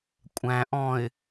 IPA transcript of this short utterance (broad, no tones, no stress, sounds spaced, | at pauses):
kʷʼ æ̃ ʔ ɔ̃ ɪ̯